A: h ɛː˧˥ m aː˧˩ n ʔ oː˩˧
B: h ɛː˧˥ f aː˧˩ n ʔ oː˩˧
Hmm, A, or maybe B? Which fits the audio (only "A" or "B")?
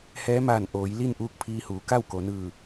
A